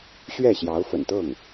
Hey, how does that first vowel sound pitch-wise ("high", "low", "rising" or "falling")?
falling